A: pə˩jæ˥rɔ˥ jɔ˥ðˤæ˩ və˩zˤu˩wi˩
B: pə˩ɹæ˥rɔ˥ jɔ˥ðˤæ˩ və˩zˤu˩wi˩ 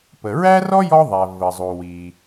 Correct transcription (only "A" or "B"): B